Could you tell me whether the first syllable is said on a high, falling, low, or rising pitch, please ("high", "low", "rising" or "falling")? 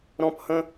high